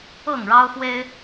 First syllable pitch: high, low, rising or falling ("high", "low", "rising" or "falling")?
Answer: falling